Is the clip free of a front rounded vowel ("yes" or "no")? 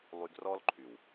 no